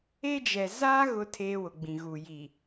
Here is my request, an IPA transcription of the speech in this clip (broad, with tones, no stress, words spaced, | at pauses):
e˦d͡ʒɛ˨ za˦ ɣʊ˦ tʰeː˦wʊ˨ɡ͡bĩ˨ ɣu˨ji˨